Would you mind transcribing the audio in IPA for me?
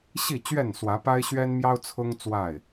ɕ i˥˨ t͡ɕ ɥ ɛ˥˨ n s w ä˨˦ p a˦ ɪ̯ ɕ ɥ ɛ˦ n m j ɑ˦ ʊ̯ t͡sʰ ʊ˦ ŋ t͡s w a˥˨ ɪ̯

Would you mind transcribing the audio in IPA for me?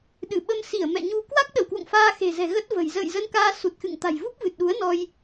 ɗ ɨ˧˩ ɓ ə˧ m s i˧˩ ə̯ m ɛ̰˧˨ ɲ u˧ k w a˦˥ k̚ ɗ ə˧˩ w k w o̰˧˨ ŋ f aː˧ x e̤˨˩ z ɛ̤˨˩ ɣ ə˦˥ t̚ v ə̤˨˩ j z ə̰ː˧˨ j z ə˧ n k aː˧ s u˨˩ t̚ x ɨ̰˧˨ ŋ t̪ a̤˨˩ j v u˦˥ p̚ v ɨ˨˩ t̚ ɗ u˨˦ ə̯ n ɔ˧ j

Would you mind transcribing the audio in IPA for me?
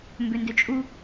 m b ø n d ø t͡ʃʼ u

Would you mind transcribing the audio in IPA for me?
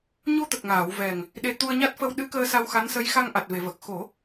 ɲ o˧ t̪ ə˨˩ k̚ ŋ aː˨˩˨ w v ɛ˨˩ ŋ | ɗ e˧ t̪ u˧ ə̯ ɲ a˦˥ t̚ f ə˧ w ɗ ɨ˧˥ k əː˧ s a˧ w x a˧˥ n s ə˧˥ j x a˧ ŋ ʔ a˨˩ t̚ v e˨˩˨ v ə˨˩ k̚ x o˨˩˦

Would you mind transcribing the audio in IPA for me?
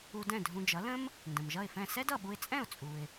u˧ d ɛ̃˥˩ dʱ ũ˧ d͡ʒ ʌ˩˥ l ə̃˥ m | n d ə̃˩ m ʒ ʌ˥˩ ɪ̯ f ɛ̃˥˩ s ɛ˥ d ʌ˥˩ ɓ u˧ ɪ̯ t͡sʼ ɛ̃˥˩ ʊ̯ t͡sʼ u˩ ɪ̯

